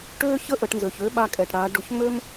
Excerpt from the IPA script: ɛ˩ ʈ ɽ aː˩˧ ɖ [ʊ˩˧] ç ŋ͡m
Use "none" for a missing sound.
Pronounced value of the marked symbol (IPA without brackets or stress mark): ʊ˩˧